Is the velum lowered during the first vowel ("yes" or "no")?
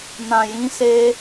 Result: yes